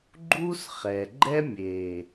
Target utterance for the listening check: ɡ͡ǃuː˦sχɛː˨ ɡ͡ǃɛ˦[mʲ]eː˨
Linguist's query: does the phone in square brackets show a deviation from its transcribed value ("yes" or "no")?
no